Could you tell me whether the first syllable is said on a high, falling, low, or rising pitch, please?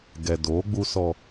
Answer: low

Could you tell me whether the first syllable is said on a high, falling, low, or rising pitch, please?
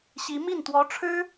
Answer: rising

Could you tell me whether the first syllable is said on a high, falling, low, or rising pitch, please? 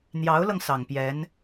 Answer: rising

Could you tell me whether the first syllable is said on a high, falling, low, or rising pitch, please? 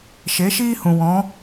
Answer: rising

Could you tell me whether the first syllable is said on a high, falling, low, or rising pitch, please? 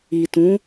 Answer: low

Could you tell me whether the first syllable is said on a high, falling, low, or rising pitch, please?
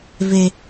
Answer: high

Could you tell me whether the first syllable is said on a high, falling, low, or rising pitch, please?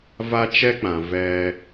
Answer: high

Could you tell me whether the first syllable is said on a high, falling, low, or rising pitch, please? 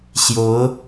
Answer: rising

